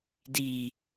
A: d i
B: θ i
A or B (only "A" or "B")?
A